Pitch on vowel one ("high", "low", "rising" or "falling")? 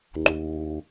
low